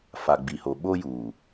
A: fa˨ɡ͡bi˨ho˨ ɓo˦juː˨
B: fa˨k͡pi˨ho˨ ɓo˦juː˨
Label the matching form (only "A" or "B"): A